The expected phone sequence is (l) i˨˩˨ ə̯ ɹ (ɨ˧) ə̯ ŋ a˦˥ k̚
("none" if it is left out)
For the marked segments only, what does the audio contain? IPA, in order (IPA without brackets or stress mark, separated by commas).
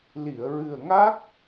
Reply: l, ɨ˨˩